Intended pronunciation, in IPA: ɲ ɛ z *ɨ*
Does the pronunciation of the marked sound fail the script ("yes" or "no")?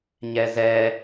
yes